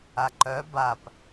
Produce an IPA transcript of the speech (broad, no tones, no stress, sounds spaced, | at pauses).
a ǃ œ b a p